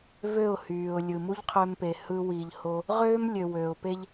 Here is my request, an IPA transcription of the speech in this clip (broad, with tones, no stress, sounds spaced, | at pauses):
v ø˦˨ ʊ̯ h yː˨ ʊ̯ lʲ ɯ˨ m u˦ ʎ qʰ ø˧ m p e˨ h ɯ˧ w i˨ ʎ h o˧ | ʁ øː˦ m lʲ ø˨ w øː˨ ʊ̯ p e˦ ʎ